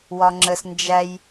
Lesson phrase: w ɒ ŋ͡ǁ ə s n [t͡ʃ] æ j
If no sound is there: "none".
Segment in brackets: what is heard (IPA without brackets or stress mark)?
d͡ʒ